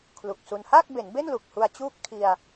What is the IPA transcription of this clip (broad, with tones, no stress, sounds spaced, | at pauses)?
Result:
kʰ l u˨˩ k̚ s u˧ n h aː˥˩ k̚ b e˩˦ n b e˥˩ n l u˨˩ k̚ h u˧ a̯ t͡ɕ uː˥˩ k̚ tʰ i˧ a̯